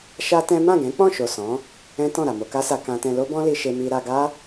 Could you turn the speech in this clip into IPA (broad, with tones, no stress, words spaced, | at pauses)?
ʃa˦tɛ̃˦ mã˦˨ɡɛ̃˨˦k͡pɔ̃˦˨ʃo˨ sɔ̃˨˦ | ɛ̃˦tɔ̃˦˨ ɾa˨mo˧ka˦sa˧ kã˧tɛ̃˧ lo˦bɔ̃˦li˧ʃe˧ mi˧ɾa˧ɡa˦